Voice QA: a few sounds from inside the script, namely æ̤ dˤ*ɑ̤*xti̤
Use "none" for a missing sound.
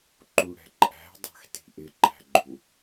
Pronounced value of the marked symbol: ɑ̤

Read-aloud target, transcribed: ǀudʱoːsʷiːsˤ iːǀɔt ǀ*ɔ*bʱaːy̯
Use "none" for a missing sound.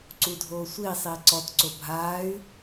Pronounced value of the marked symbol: o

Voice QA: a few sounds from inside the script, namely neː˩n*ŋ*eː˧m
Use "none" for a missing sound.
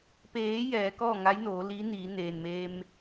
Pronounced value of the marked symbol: m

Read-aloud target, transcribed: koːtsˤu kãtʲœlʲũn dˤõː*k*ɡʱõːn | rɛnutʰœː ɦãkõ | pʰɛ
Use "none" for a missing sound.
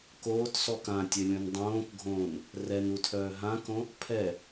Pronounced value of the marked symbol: k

